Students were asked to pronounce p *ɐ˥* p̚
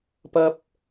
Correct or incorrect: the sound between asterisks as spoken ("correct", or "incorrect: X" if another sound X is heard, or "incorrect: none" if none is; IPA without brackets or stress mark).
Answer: correct